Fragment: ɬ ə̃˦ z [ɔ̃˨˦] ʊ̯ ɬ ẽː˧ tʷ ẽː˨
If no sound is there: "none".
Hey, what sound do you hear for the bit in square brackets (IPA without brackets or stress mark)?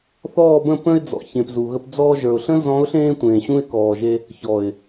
ɔ̃˨˦